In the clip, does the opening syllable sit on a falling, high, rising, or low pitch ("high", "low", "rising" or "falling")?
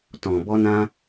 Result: low